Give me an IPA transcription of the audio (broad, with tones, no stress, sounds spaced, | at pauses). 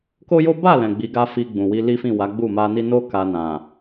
k o˦ j o˦ b a˦˨ l ɛ̃˨ ɡ͡b i˨˦ ɡ a˦ f i˧ ɡ͡b ũ˨ w i˧ l i˦ f ĩ˦˨ w a˨˦ ɡ͡b u˦˨ m a˧ n i˦ n o˦ k a˧ n ã˨